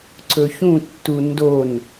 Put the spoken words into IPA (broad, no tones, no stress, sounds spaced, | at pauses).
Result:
ǀ ɵ ç ũ tː u n d o n